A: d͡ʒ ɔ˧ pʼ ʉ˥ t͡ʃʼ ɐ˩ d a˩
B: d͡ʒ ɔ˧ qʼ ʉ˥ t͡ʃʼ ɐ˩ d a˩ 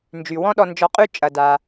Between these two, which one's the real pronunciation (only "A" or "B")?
B